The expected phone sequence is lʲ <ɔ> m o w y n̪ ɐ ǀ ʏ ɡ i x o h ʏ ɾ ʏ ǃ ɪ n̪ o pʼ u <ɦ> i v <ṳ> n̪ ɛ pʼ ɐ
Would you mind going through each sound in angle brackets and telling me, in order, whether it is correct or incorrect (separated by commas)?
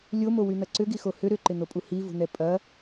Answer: incorrect, incorrect, correct